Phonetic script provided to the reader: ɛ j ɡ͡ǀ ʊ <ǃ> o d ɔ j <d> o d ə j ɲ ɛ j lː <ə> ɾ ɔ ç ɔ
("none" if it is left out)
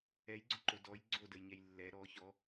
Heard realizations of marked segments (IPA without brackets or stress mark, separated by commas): ǃ, ɡ͡ǀ, ɛ